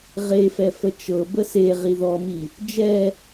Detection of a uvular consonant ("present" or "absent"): present